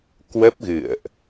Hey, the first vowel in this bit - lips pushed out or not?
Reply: no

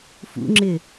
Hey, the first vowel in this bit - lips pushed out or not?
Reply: yes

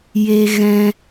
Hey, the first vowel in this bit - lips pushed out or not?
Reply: no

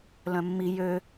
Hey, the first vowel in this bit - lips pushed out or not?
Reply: yes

